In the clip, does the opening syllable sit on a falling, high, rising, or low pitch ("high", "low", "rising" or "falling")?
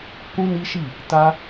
high